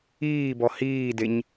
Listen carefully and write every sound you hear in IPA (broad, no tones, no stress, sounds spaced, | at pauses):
iː b ɔ h iː d e ɲ